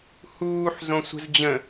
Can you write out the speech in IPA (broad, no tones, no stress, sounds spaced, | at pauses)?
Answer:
h uː ħ z õ sʷ ə̤ z d͡ʑ ə̃